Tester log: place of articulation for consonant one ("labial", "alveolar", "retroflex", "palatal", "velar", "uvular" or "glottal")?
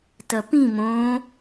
alveolar